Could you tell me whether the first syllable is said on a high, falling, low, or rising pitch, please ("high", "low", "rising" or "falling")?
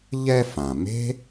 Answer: high